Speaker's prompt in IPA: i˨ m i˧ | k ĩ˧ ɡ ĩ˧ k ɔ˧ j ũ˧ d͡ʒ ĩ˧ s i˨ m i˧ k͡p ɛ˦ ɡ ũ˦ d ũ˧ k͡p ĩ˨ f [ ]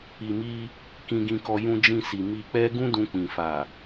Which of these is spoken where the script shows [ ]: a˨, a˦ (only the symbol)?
a˨